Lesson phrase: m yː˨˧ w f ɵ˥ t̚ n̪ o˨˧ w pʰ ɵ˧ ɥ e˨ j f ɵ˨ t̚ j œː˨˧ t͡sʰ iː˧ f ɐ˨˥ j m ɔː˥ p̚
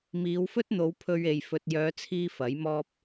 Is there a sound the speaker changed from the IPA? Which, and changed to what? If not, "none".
yː˨˧ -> iː˨˧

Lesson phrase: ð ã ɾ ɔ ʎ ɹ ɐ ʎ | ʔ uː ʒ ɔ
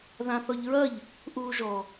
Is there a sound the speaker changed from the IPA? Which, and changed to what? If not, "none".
ɾ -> θ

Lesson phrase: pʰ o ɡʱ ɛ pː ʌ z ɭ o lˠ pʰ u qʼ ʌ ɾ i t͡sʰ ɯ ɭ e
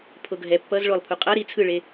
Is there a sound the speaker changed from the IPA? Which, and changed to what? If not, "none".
none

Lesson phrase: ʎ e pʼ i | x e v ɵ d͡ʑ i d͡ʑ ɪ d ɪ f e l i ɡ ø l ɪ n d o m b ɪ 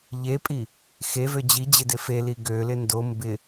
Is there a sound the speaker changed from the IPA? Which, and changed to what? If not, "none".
ɵ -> ø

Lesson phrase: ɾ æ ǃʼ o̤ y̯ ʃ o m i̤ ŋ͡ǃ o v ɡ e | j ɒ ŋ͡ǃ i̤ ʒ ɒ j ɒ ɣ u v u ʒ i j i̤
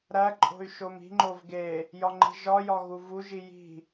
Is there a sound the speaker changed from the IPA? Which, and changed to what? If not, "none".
none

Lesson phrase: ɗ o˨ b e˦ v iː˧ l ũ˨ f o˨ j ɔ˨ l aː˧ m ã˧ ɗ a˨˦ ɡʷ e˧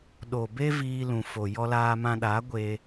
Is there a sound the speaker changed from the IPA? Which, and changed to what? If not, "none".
ɔ˨ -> ɔ˧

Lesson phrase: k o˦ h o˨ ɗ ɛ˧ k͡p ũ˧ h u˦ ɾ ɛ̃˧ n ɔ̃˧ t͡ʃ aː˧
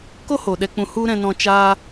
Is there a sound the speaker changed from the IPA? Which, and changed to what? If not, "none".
none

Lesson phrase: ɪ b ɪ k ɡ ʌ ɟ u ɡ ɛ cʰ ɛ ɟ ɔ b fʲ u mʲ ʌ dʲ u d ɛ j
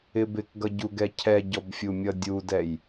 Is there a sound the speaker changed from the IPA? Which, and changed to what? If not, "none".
none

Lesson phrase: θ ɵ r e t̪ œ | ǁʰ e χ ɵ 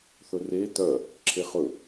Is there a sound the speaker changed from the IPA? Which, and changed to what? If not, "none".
none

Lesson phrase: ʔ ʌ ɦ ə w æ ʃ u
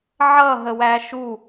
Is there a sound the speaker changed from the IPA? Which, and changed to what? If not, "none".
ʔ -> ʕ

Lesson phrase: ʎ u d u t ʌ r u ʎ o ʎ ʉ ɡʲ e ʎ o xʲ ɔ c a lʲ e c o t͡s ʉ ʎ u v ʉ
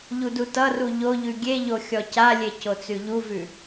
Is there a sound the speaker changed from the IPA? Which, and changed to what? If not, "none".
none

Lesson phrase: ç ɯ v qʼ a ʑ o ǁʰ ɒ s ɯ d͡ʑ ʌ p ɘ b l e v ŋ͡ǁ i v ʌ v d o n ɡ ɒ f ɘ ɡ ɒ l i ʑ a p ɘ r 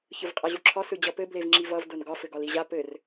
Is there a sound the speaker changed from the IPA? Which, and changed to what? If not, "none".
none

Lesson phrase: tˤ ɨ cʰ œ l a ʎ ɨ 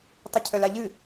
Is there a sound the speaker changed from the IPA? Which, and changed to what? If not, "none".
none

